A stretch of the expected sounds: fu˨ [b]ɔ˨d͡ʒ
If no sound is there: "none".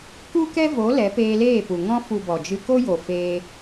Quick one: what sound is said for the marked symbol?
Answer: b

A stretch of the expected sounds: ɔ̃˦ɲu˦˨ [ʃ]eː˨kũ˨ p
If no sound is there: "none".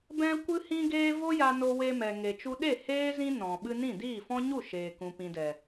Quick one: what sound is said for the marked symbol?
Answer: ʃ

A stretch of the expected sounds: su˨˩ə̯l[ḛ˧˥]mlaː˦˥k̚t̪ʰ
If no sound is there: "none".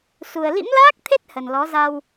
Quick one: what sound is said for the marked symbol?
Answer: ḭ˧˥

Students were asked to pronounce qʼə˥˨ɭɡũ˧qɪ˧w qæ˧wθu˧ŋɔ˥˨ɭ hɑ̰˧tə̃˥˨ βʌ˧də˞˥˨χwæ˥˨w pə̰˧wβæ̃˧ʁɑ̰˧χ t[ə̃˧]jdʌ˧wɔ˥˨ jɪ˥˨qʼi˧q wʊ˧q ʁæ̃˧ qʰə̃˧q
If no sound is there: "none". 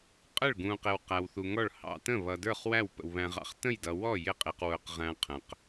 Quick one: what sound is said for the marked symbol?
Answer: ə̃˥˨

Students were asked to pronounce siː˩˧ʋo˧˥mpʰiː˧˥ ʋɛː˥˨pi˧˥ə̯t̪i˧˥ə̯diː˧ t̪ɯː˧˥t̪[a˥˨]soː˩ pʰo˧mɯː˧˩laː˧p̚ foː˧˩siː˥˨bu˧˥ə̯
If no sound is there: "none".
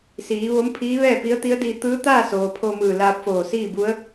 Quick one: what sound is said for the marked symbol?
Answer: aː˥˨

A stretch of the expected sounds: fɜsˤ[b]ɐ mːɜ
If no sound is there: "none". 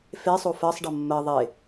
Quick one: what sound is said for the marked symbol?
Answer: ɖ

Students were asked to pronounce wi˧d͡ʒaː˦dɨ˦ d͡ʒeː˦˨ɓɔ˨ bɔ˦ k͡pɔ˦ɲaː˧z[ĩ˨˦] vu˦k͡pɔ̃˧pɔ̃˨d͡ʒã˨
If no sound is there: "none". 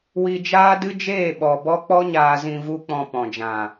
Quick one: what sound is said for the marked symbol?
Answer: ĩ˧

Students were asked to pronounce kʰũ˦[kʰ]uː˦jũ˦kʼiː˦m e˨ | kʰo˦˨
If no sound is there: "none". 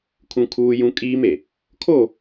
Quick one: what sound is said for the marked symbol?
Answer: kʰ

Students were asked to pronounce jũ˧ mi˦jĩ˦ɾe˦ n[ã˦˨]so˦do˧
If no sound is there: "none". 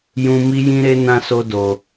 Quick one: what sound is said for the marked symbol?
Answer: ã˦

